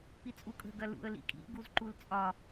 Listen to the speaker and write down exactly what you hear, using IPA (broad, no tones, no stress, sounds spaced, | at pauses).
p i t͡sʼ u kʼ ə̤ ɡ ɐ l ṵ ə̯ l ḭ kʼ ḭ ɡ u z ǃ u l t͡sʼ ɒ